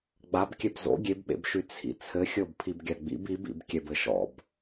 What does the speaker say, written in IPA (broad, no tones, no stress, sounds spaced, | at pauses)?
ɡ͡b a b kʲ ɛ b z o̰ ɡʲ e b ɓ ḛ b ʃ y t͡sʰ ḭ t͡sʰ ɘ xʲ ɤ b pʰ i b ɡʲ a ɡ͡b ḭ b i b ḭ b kʲ ɛ b ɘ ʃ ɔ̰ b